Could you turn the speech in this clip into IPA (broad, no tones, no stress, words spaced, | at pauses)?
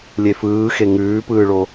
lʲefɯːxe ŋʉːpɯːɭo